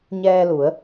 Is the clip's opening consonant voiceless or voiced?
voiced